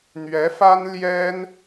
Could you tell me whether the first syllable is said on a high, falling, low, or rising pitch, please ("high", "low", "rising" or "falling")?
rising